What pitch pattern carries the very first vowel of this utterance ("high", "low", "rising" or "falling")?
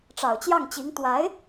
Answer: low